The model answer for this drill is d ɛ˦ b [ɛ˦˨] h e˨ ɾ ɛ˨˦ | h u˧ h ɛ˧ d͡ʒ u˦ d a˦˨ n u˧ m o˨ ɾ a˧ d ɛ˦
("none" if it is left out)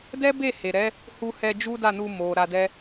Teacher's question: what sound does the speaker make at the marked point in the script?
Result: e˦˨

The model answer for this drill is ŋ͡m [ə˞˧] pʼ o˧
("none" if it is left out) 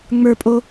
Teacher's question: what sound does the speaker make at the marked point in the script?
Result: ə˞˧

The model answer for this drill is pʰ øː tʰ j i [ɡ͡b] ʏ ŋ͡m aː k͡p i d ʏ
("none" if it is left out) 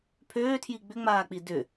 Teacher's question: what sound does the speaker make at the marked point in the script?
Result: ɡ͡b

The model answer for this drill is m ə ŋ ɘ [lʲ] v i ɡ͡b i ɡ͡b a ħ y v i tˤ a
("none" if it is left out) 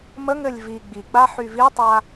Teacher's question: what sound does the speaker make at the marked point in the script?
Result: lʲ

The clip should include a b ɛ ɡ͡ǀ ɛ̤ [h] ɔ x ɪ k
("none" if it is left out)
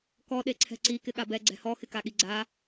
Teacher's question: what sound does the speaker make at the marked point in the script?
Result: h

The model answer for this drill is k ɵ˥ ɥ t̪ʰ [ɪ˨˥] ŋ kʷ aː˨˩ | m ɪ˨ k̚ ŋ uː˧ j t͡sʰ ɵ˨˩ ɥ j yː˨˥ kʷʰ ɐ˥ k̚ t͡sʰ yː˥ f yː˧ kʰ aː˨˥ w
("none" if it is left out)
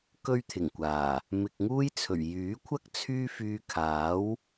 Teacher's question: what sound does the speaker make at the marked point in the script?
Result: ɪ˨˩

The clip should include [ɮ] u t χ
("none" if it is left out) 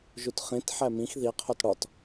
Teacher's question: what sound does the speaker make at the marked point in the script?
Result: ʒ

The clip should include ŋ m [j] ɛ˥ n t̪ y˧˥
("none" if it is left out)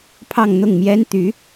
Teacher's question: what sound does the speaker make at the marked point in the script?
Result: j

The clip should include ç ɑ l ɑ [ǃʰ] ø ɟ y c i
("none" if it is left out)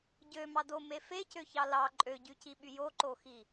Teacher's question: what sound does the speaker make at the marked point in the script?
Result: ǃʼ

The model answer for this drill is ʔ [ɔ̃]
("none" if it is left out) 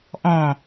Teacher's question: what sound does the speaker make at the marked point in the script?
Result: ɔ̃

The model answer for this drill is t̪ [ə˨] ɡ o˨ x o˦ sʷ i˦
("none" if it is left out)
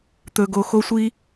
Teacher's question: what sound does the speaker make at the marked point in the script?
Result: ɵ˨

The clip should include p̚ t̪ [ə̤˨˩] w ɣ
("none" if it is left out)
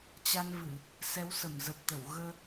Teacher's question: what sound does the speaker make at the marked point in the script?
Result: ə˧˩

